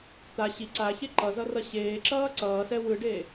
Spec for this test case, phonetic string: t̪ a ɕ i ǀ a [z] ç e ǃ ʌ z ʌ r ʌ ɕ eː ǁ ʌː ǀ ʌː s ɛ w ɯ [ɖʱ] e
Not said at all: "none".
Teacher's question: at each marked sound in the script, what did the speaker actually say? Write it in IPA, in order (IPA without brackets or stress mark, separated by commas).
none, ɖ